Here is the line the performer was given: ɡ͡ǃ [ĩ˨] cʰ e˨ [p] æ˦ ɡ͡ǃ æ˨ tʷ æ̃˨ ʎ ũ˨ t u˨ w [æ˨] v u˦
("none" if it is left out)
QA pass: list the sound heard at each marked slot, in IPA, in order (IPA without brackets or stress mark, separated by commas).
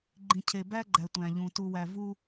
ĩ˨, b, æ˨